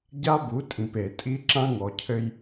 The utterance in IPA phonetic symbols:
ɟ a˦ b u˨˦ tʼ ĩ˨ p e˨ tʼ i˦ ǁ ã˦ ŋ ɔ˨ cʰ ɘ˦ j

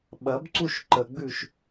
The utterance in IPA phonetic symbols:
ɓ ɐ b ǀ u ʃ ǃ ə ɡ͡b ʉ ʃ

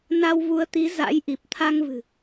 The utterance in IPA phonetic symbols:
n a˧ w v u˨˦ ə̯ t̪ i˨˦ z a̰˧˥ j ʔ i˨˩ p̚ t̪ʰ a˧ ŋ v ɨ̤˨˩

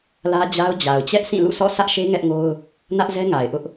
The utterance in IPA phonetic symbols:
l ä˦ d͡ʑ a˦ ʊ̯ d͡ʑ a˨ ʊ̯ t͡ɕ ɛ˦ ʔ s ĩ˦˨ l ṵ˦˨ s ɔ̰˦˨ sʰ ä˦ ʔ ʃ e˦ ŋ ɛ˦ ʔ ŋ o˦ ʊ̯ | n ä˦ ʔ z ɛ˦ ŋ a˨ ɪ̯ ʔ ʊ˦ ʔ

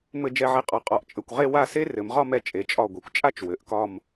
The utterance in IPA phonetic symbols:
m ɘ˧˩ d͡ʒ ɛ˧˩ ʕ e˧ qʼ ɒ˩˧ qʼ ɒ˩˧ ʔ t͡ʃʼ ɘ˧˩ kʷ ʁ e˥˧ w a˥˧ s e˥ r ɘ˩˧ m ʁ ɒ˥˧ m ɛ˧ t͡ʃʼ e˩˧ t͡ʃʼ ɒ˧˩ ɡʷ i˩˧ kʷ t͡ʃʼ a˥˧ t͡ʃ w ɘ˩˧ ʔ k ɒ˥˧ m

